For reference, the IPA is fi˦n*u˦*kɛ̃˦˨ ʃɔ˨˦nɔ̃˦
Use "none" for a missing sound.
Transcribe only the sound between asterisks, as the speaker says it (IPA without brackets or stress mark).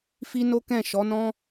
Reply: o˦